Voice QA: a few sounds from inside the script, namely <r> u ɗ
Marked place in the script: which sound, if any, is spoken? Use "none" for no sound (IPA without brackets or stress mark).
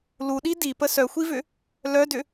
l